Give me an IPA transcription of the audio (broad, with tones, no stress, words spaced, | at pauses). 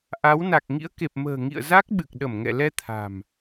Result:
ʔa˨˦wna˨˩k̚ ŋḭ˧˥ə̯ke˨˩p̚mə̤ː˨˩ ŋḭ˧˨ə̯za˦˥k̚ ɓɨ˨˩k̚ɗə˧˩mŋɛ̰˧˨lɛ˧ t̪ʰa̤˨˩m